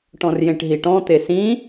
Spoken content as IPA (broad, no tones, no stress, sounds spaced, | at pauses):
ʈ ɔ̃ r j ẽ ʈ ɦ i ʈ ɔ̃ t̪ e s ĩ